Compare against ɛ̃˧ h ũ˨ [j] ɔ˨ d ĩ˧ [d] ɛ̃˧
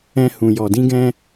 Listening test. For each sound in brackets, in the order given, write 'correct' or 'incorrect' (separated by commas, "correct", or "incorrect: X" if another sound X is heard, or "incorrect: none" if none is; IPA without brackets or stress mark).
correct, incorrect: ɡ